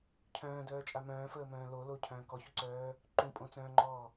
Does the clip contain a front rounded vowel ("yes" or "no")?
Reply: yes